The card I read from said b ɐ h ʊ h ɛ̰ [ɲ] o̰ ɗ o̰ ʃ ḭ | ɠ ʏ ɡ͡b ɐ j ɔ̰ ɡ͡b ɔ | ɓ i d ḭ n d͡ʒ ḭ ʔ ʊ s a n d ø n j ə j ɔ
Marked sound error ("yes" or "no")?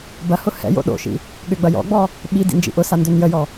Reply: yes